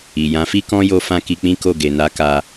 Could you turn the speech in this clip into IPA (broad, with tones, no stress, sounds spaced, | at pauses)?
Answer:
i˨ j ã˨˦ f i˦ k ɔ̃˦ j o˦ f ã˦ k i˧ k͡p ĩ˦ k o˦˨ ɡ e˨ n a˨˦ k a˧